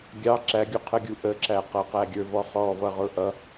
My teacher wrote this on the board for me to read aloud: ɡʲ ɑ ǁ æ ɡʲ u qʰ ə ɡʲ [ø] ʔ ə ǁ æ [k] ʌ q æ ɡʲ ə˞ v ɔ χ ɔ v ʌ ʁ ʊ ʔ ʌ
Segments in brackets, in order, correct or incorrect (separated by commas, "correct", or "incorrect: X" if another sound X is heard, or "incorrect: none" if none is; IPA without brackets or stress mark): incorrect: u, incorrect: q